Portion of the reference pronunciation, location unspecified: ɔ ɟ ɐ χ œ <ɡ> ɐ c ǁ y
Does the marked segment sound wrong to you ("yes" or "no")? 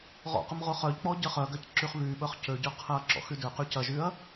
no